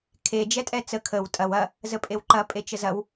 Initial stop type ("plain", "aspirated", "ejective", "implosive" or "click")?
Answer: aspirated